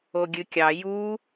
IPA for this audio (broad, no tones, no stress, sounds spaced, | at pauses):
o ɡʲ ɨ kʲ ɑ j u